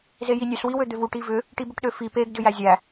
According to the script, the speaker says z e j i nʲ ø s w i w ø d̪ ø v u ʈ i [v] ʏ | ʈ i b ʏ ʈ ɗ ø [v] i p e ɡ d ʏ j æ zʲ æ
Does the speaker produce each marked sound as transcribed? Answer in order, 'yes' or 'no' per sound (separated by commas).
yes, no